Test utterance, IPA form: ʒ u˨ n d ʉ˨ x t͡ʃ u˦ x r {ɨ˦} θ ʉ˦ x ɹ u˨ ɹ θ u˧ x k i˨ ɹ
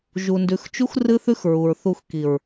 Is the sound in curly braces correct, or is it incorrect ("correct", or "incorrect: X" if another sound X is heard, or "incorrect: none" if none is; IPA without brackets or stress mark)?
correct